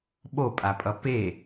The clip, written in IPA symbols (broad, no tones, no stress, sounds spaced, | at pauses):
ɓ o pʼ a pʼ ʌ p e